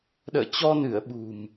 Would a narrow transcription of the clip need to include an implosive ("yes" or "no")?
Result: yes